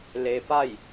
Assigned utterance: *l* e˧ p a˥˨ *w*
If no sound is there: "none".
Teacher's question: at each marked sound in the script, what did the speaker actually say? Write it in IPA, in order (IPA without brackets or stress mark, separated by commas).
l, j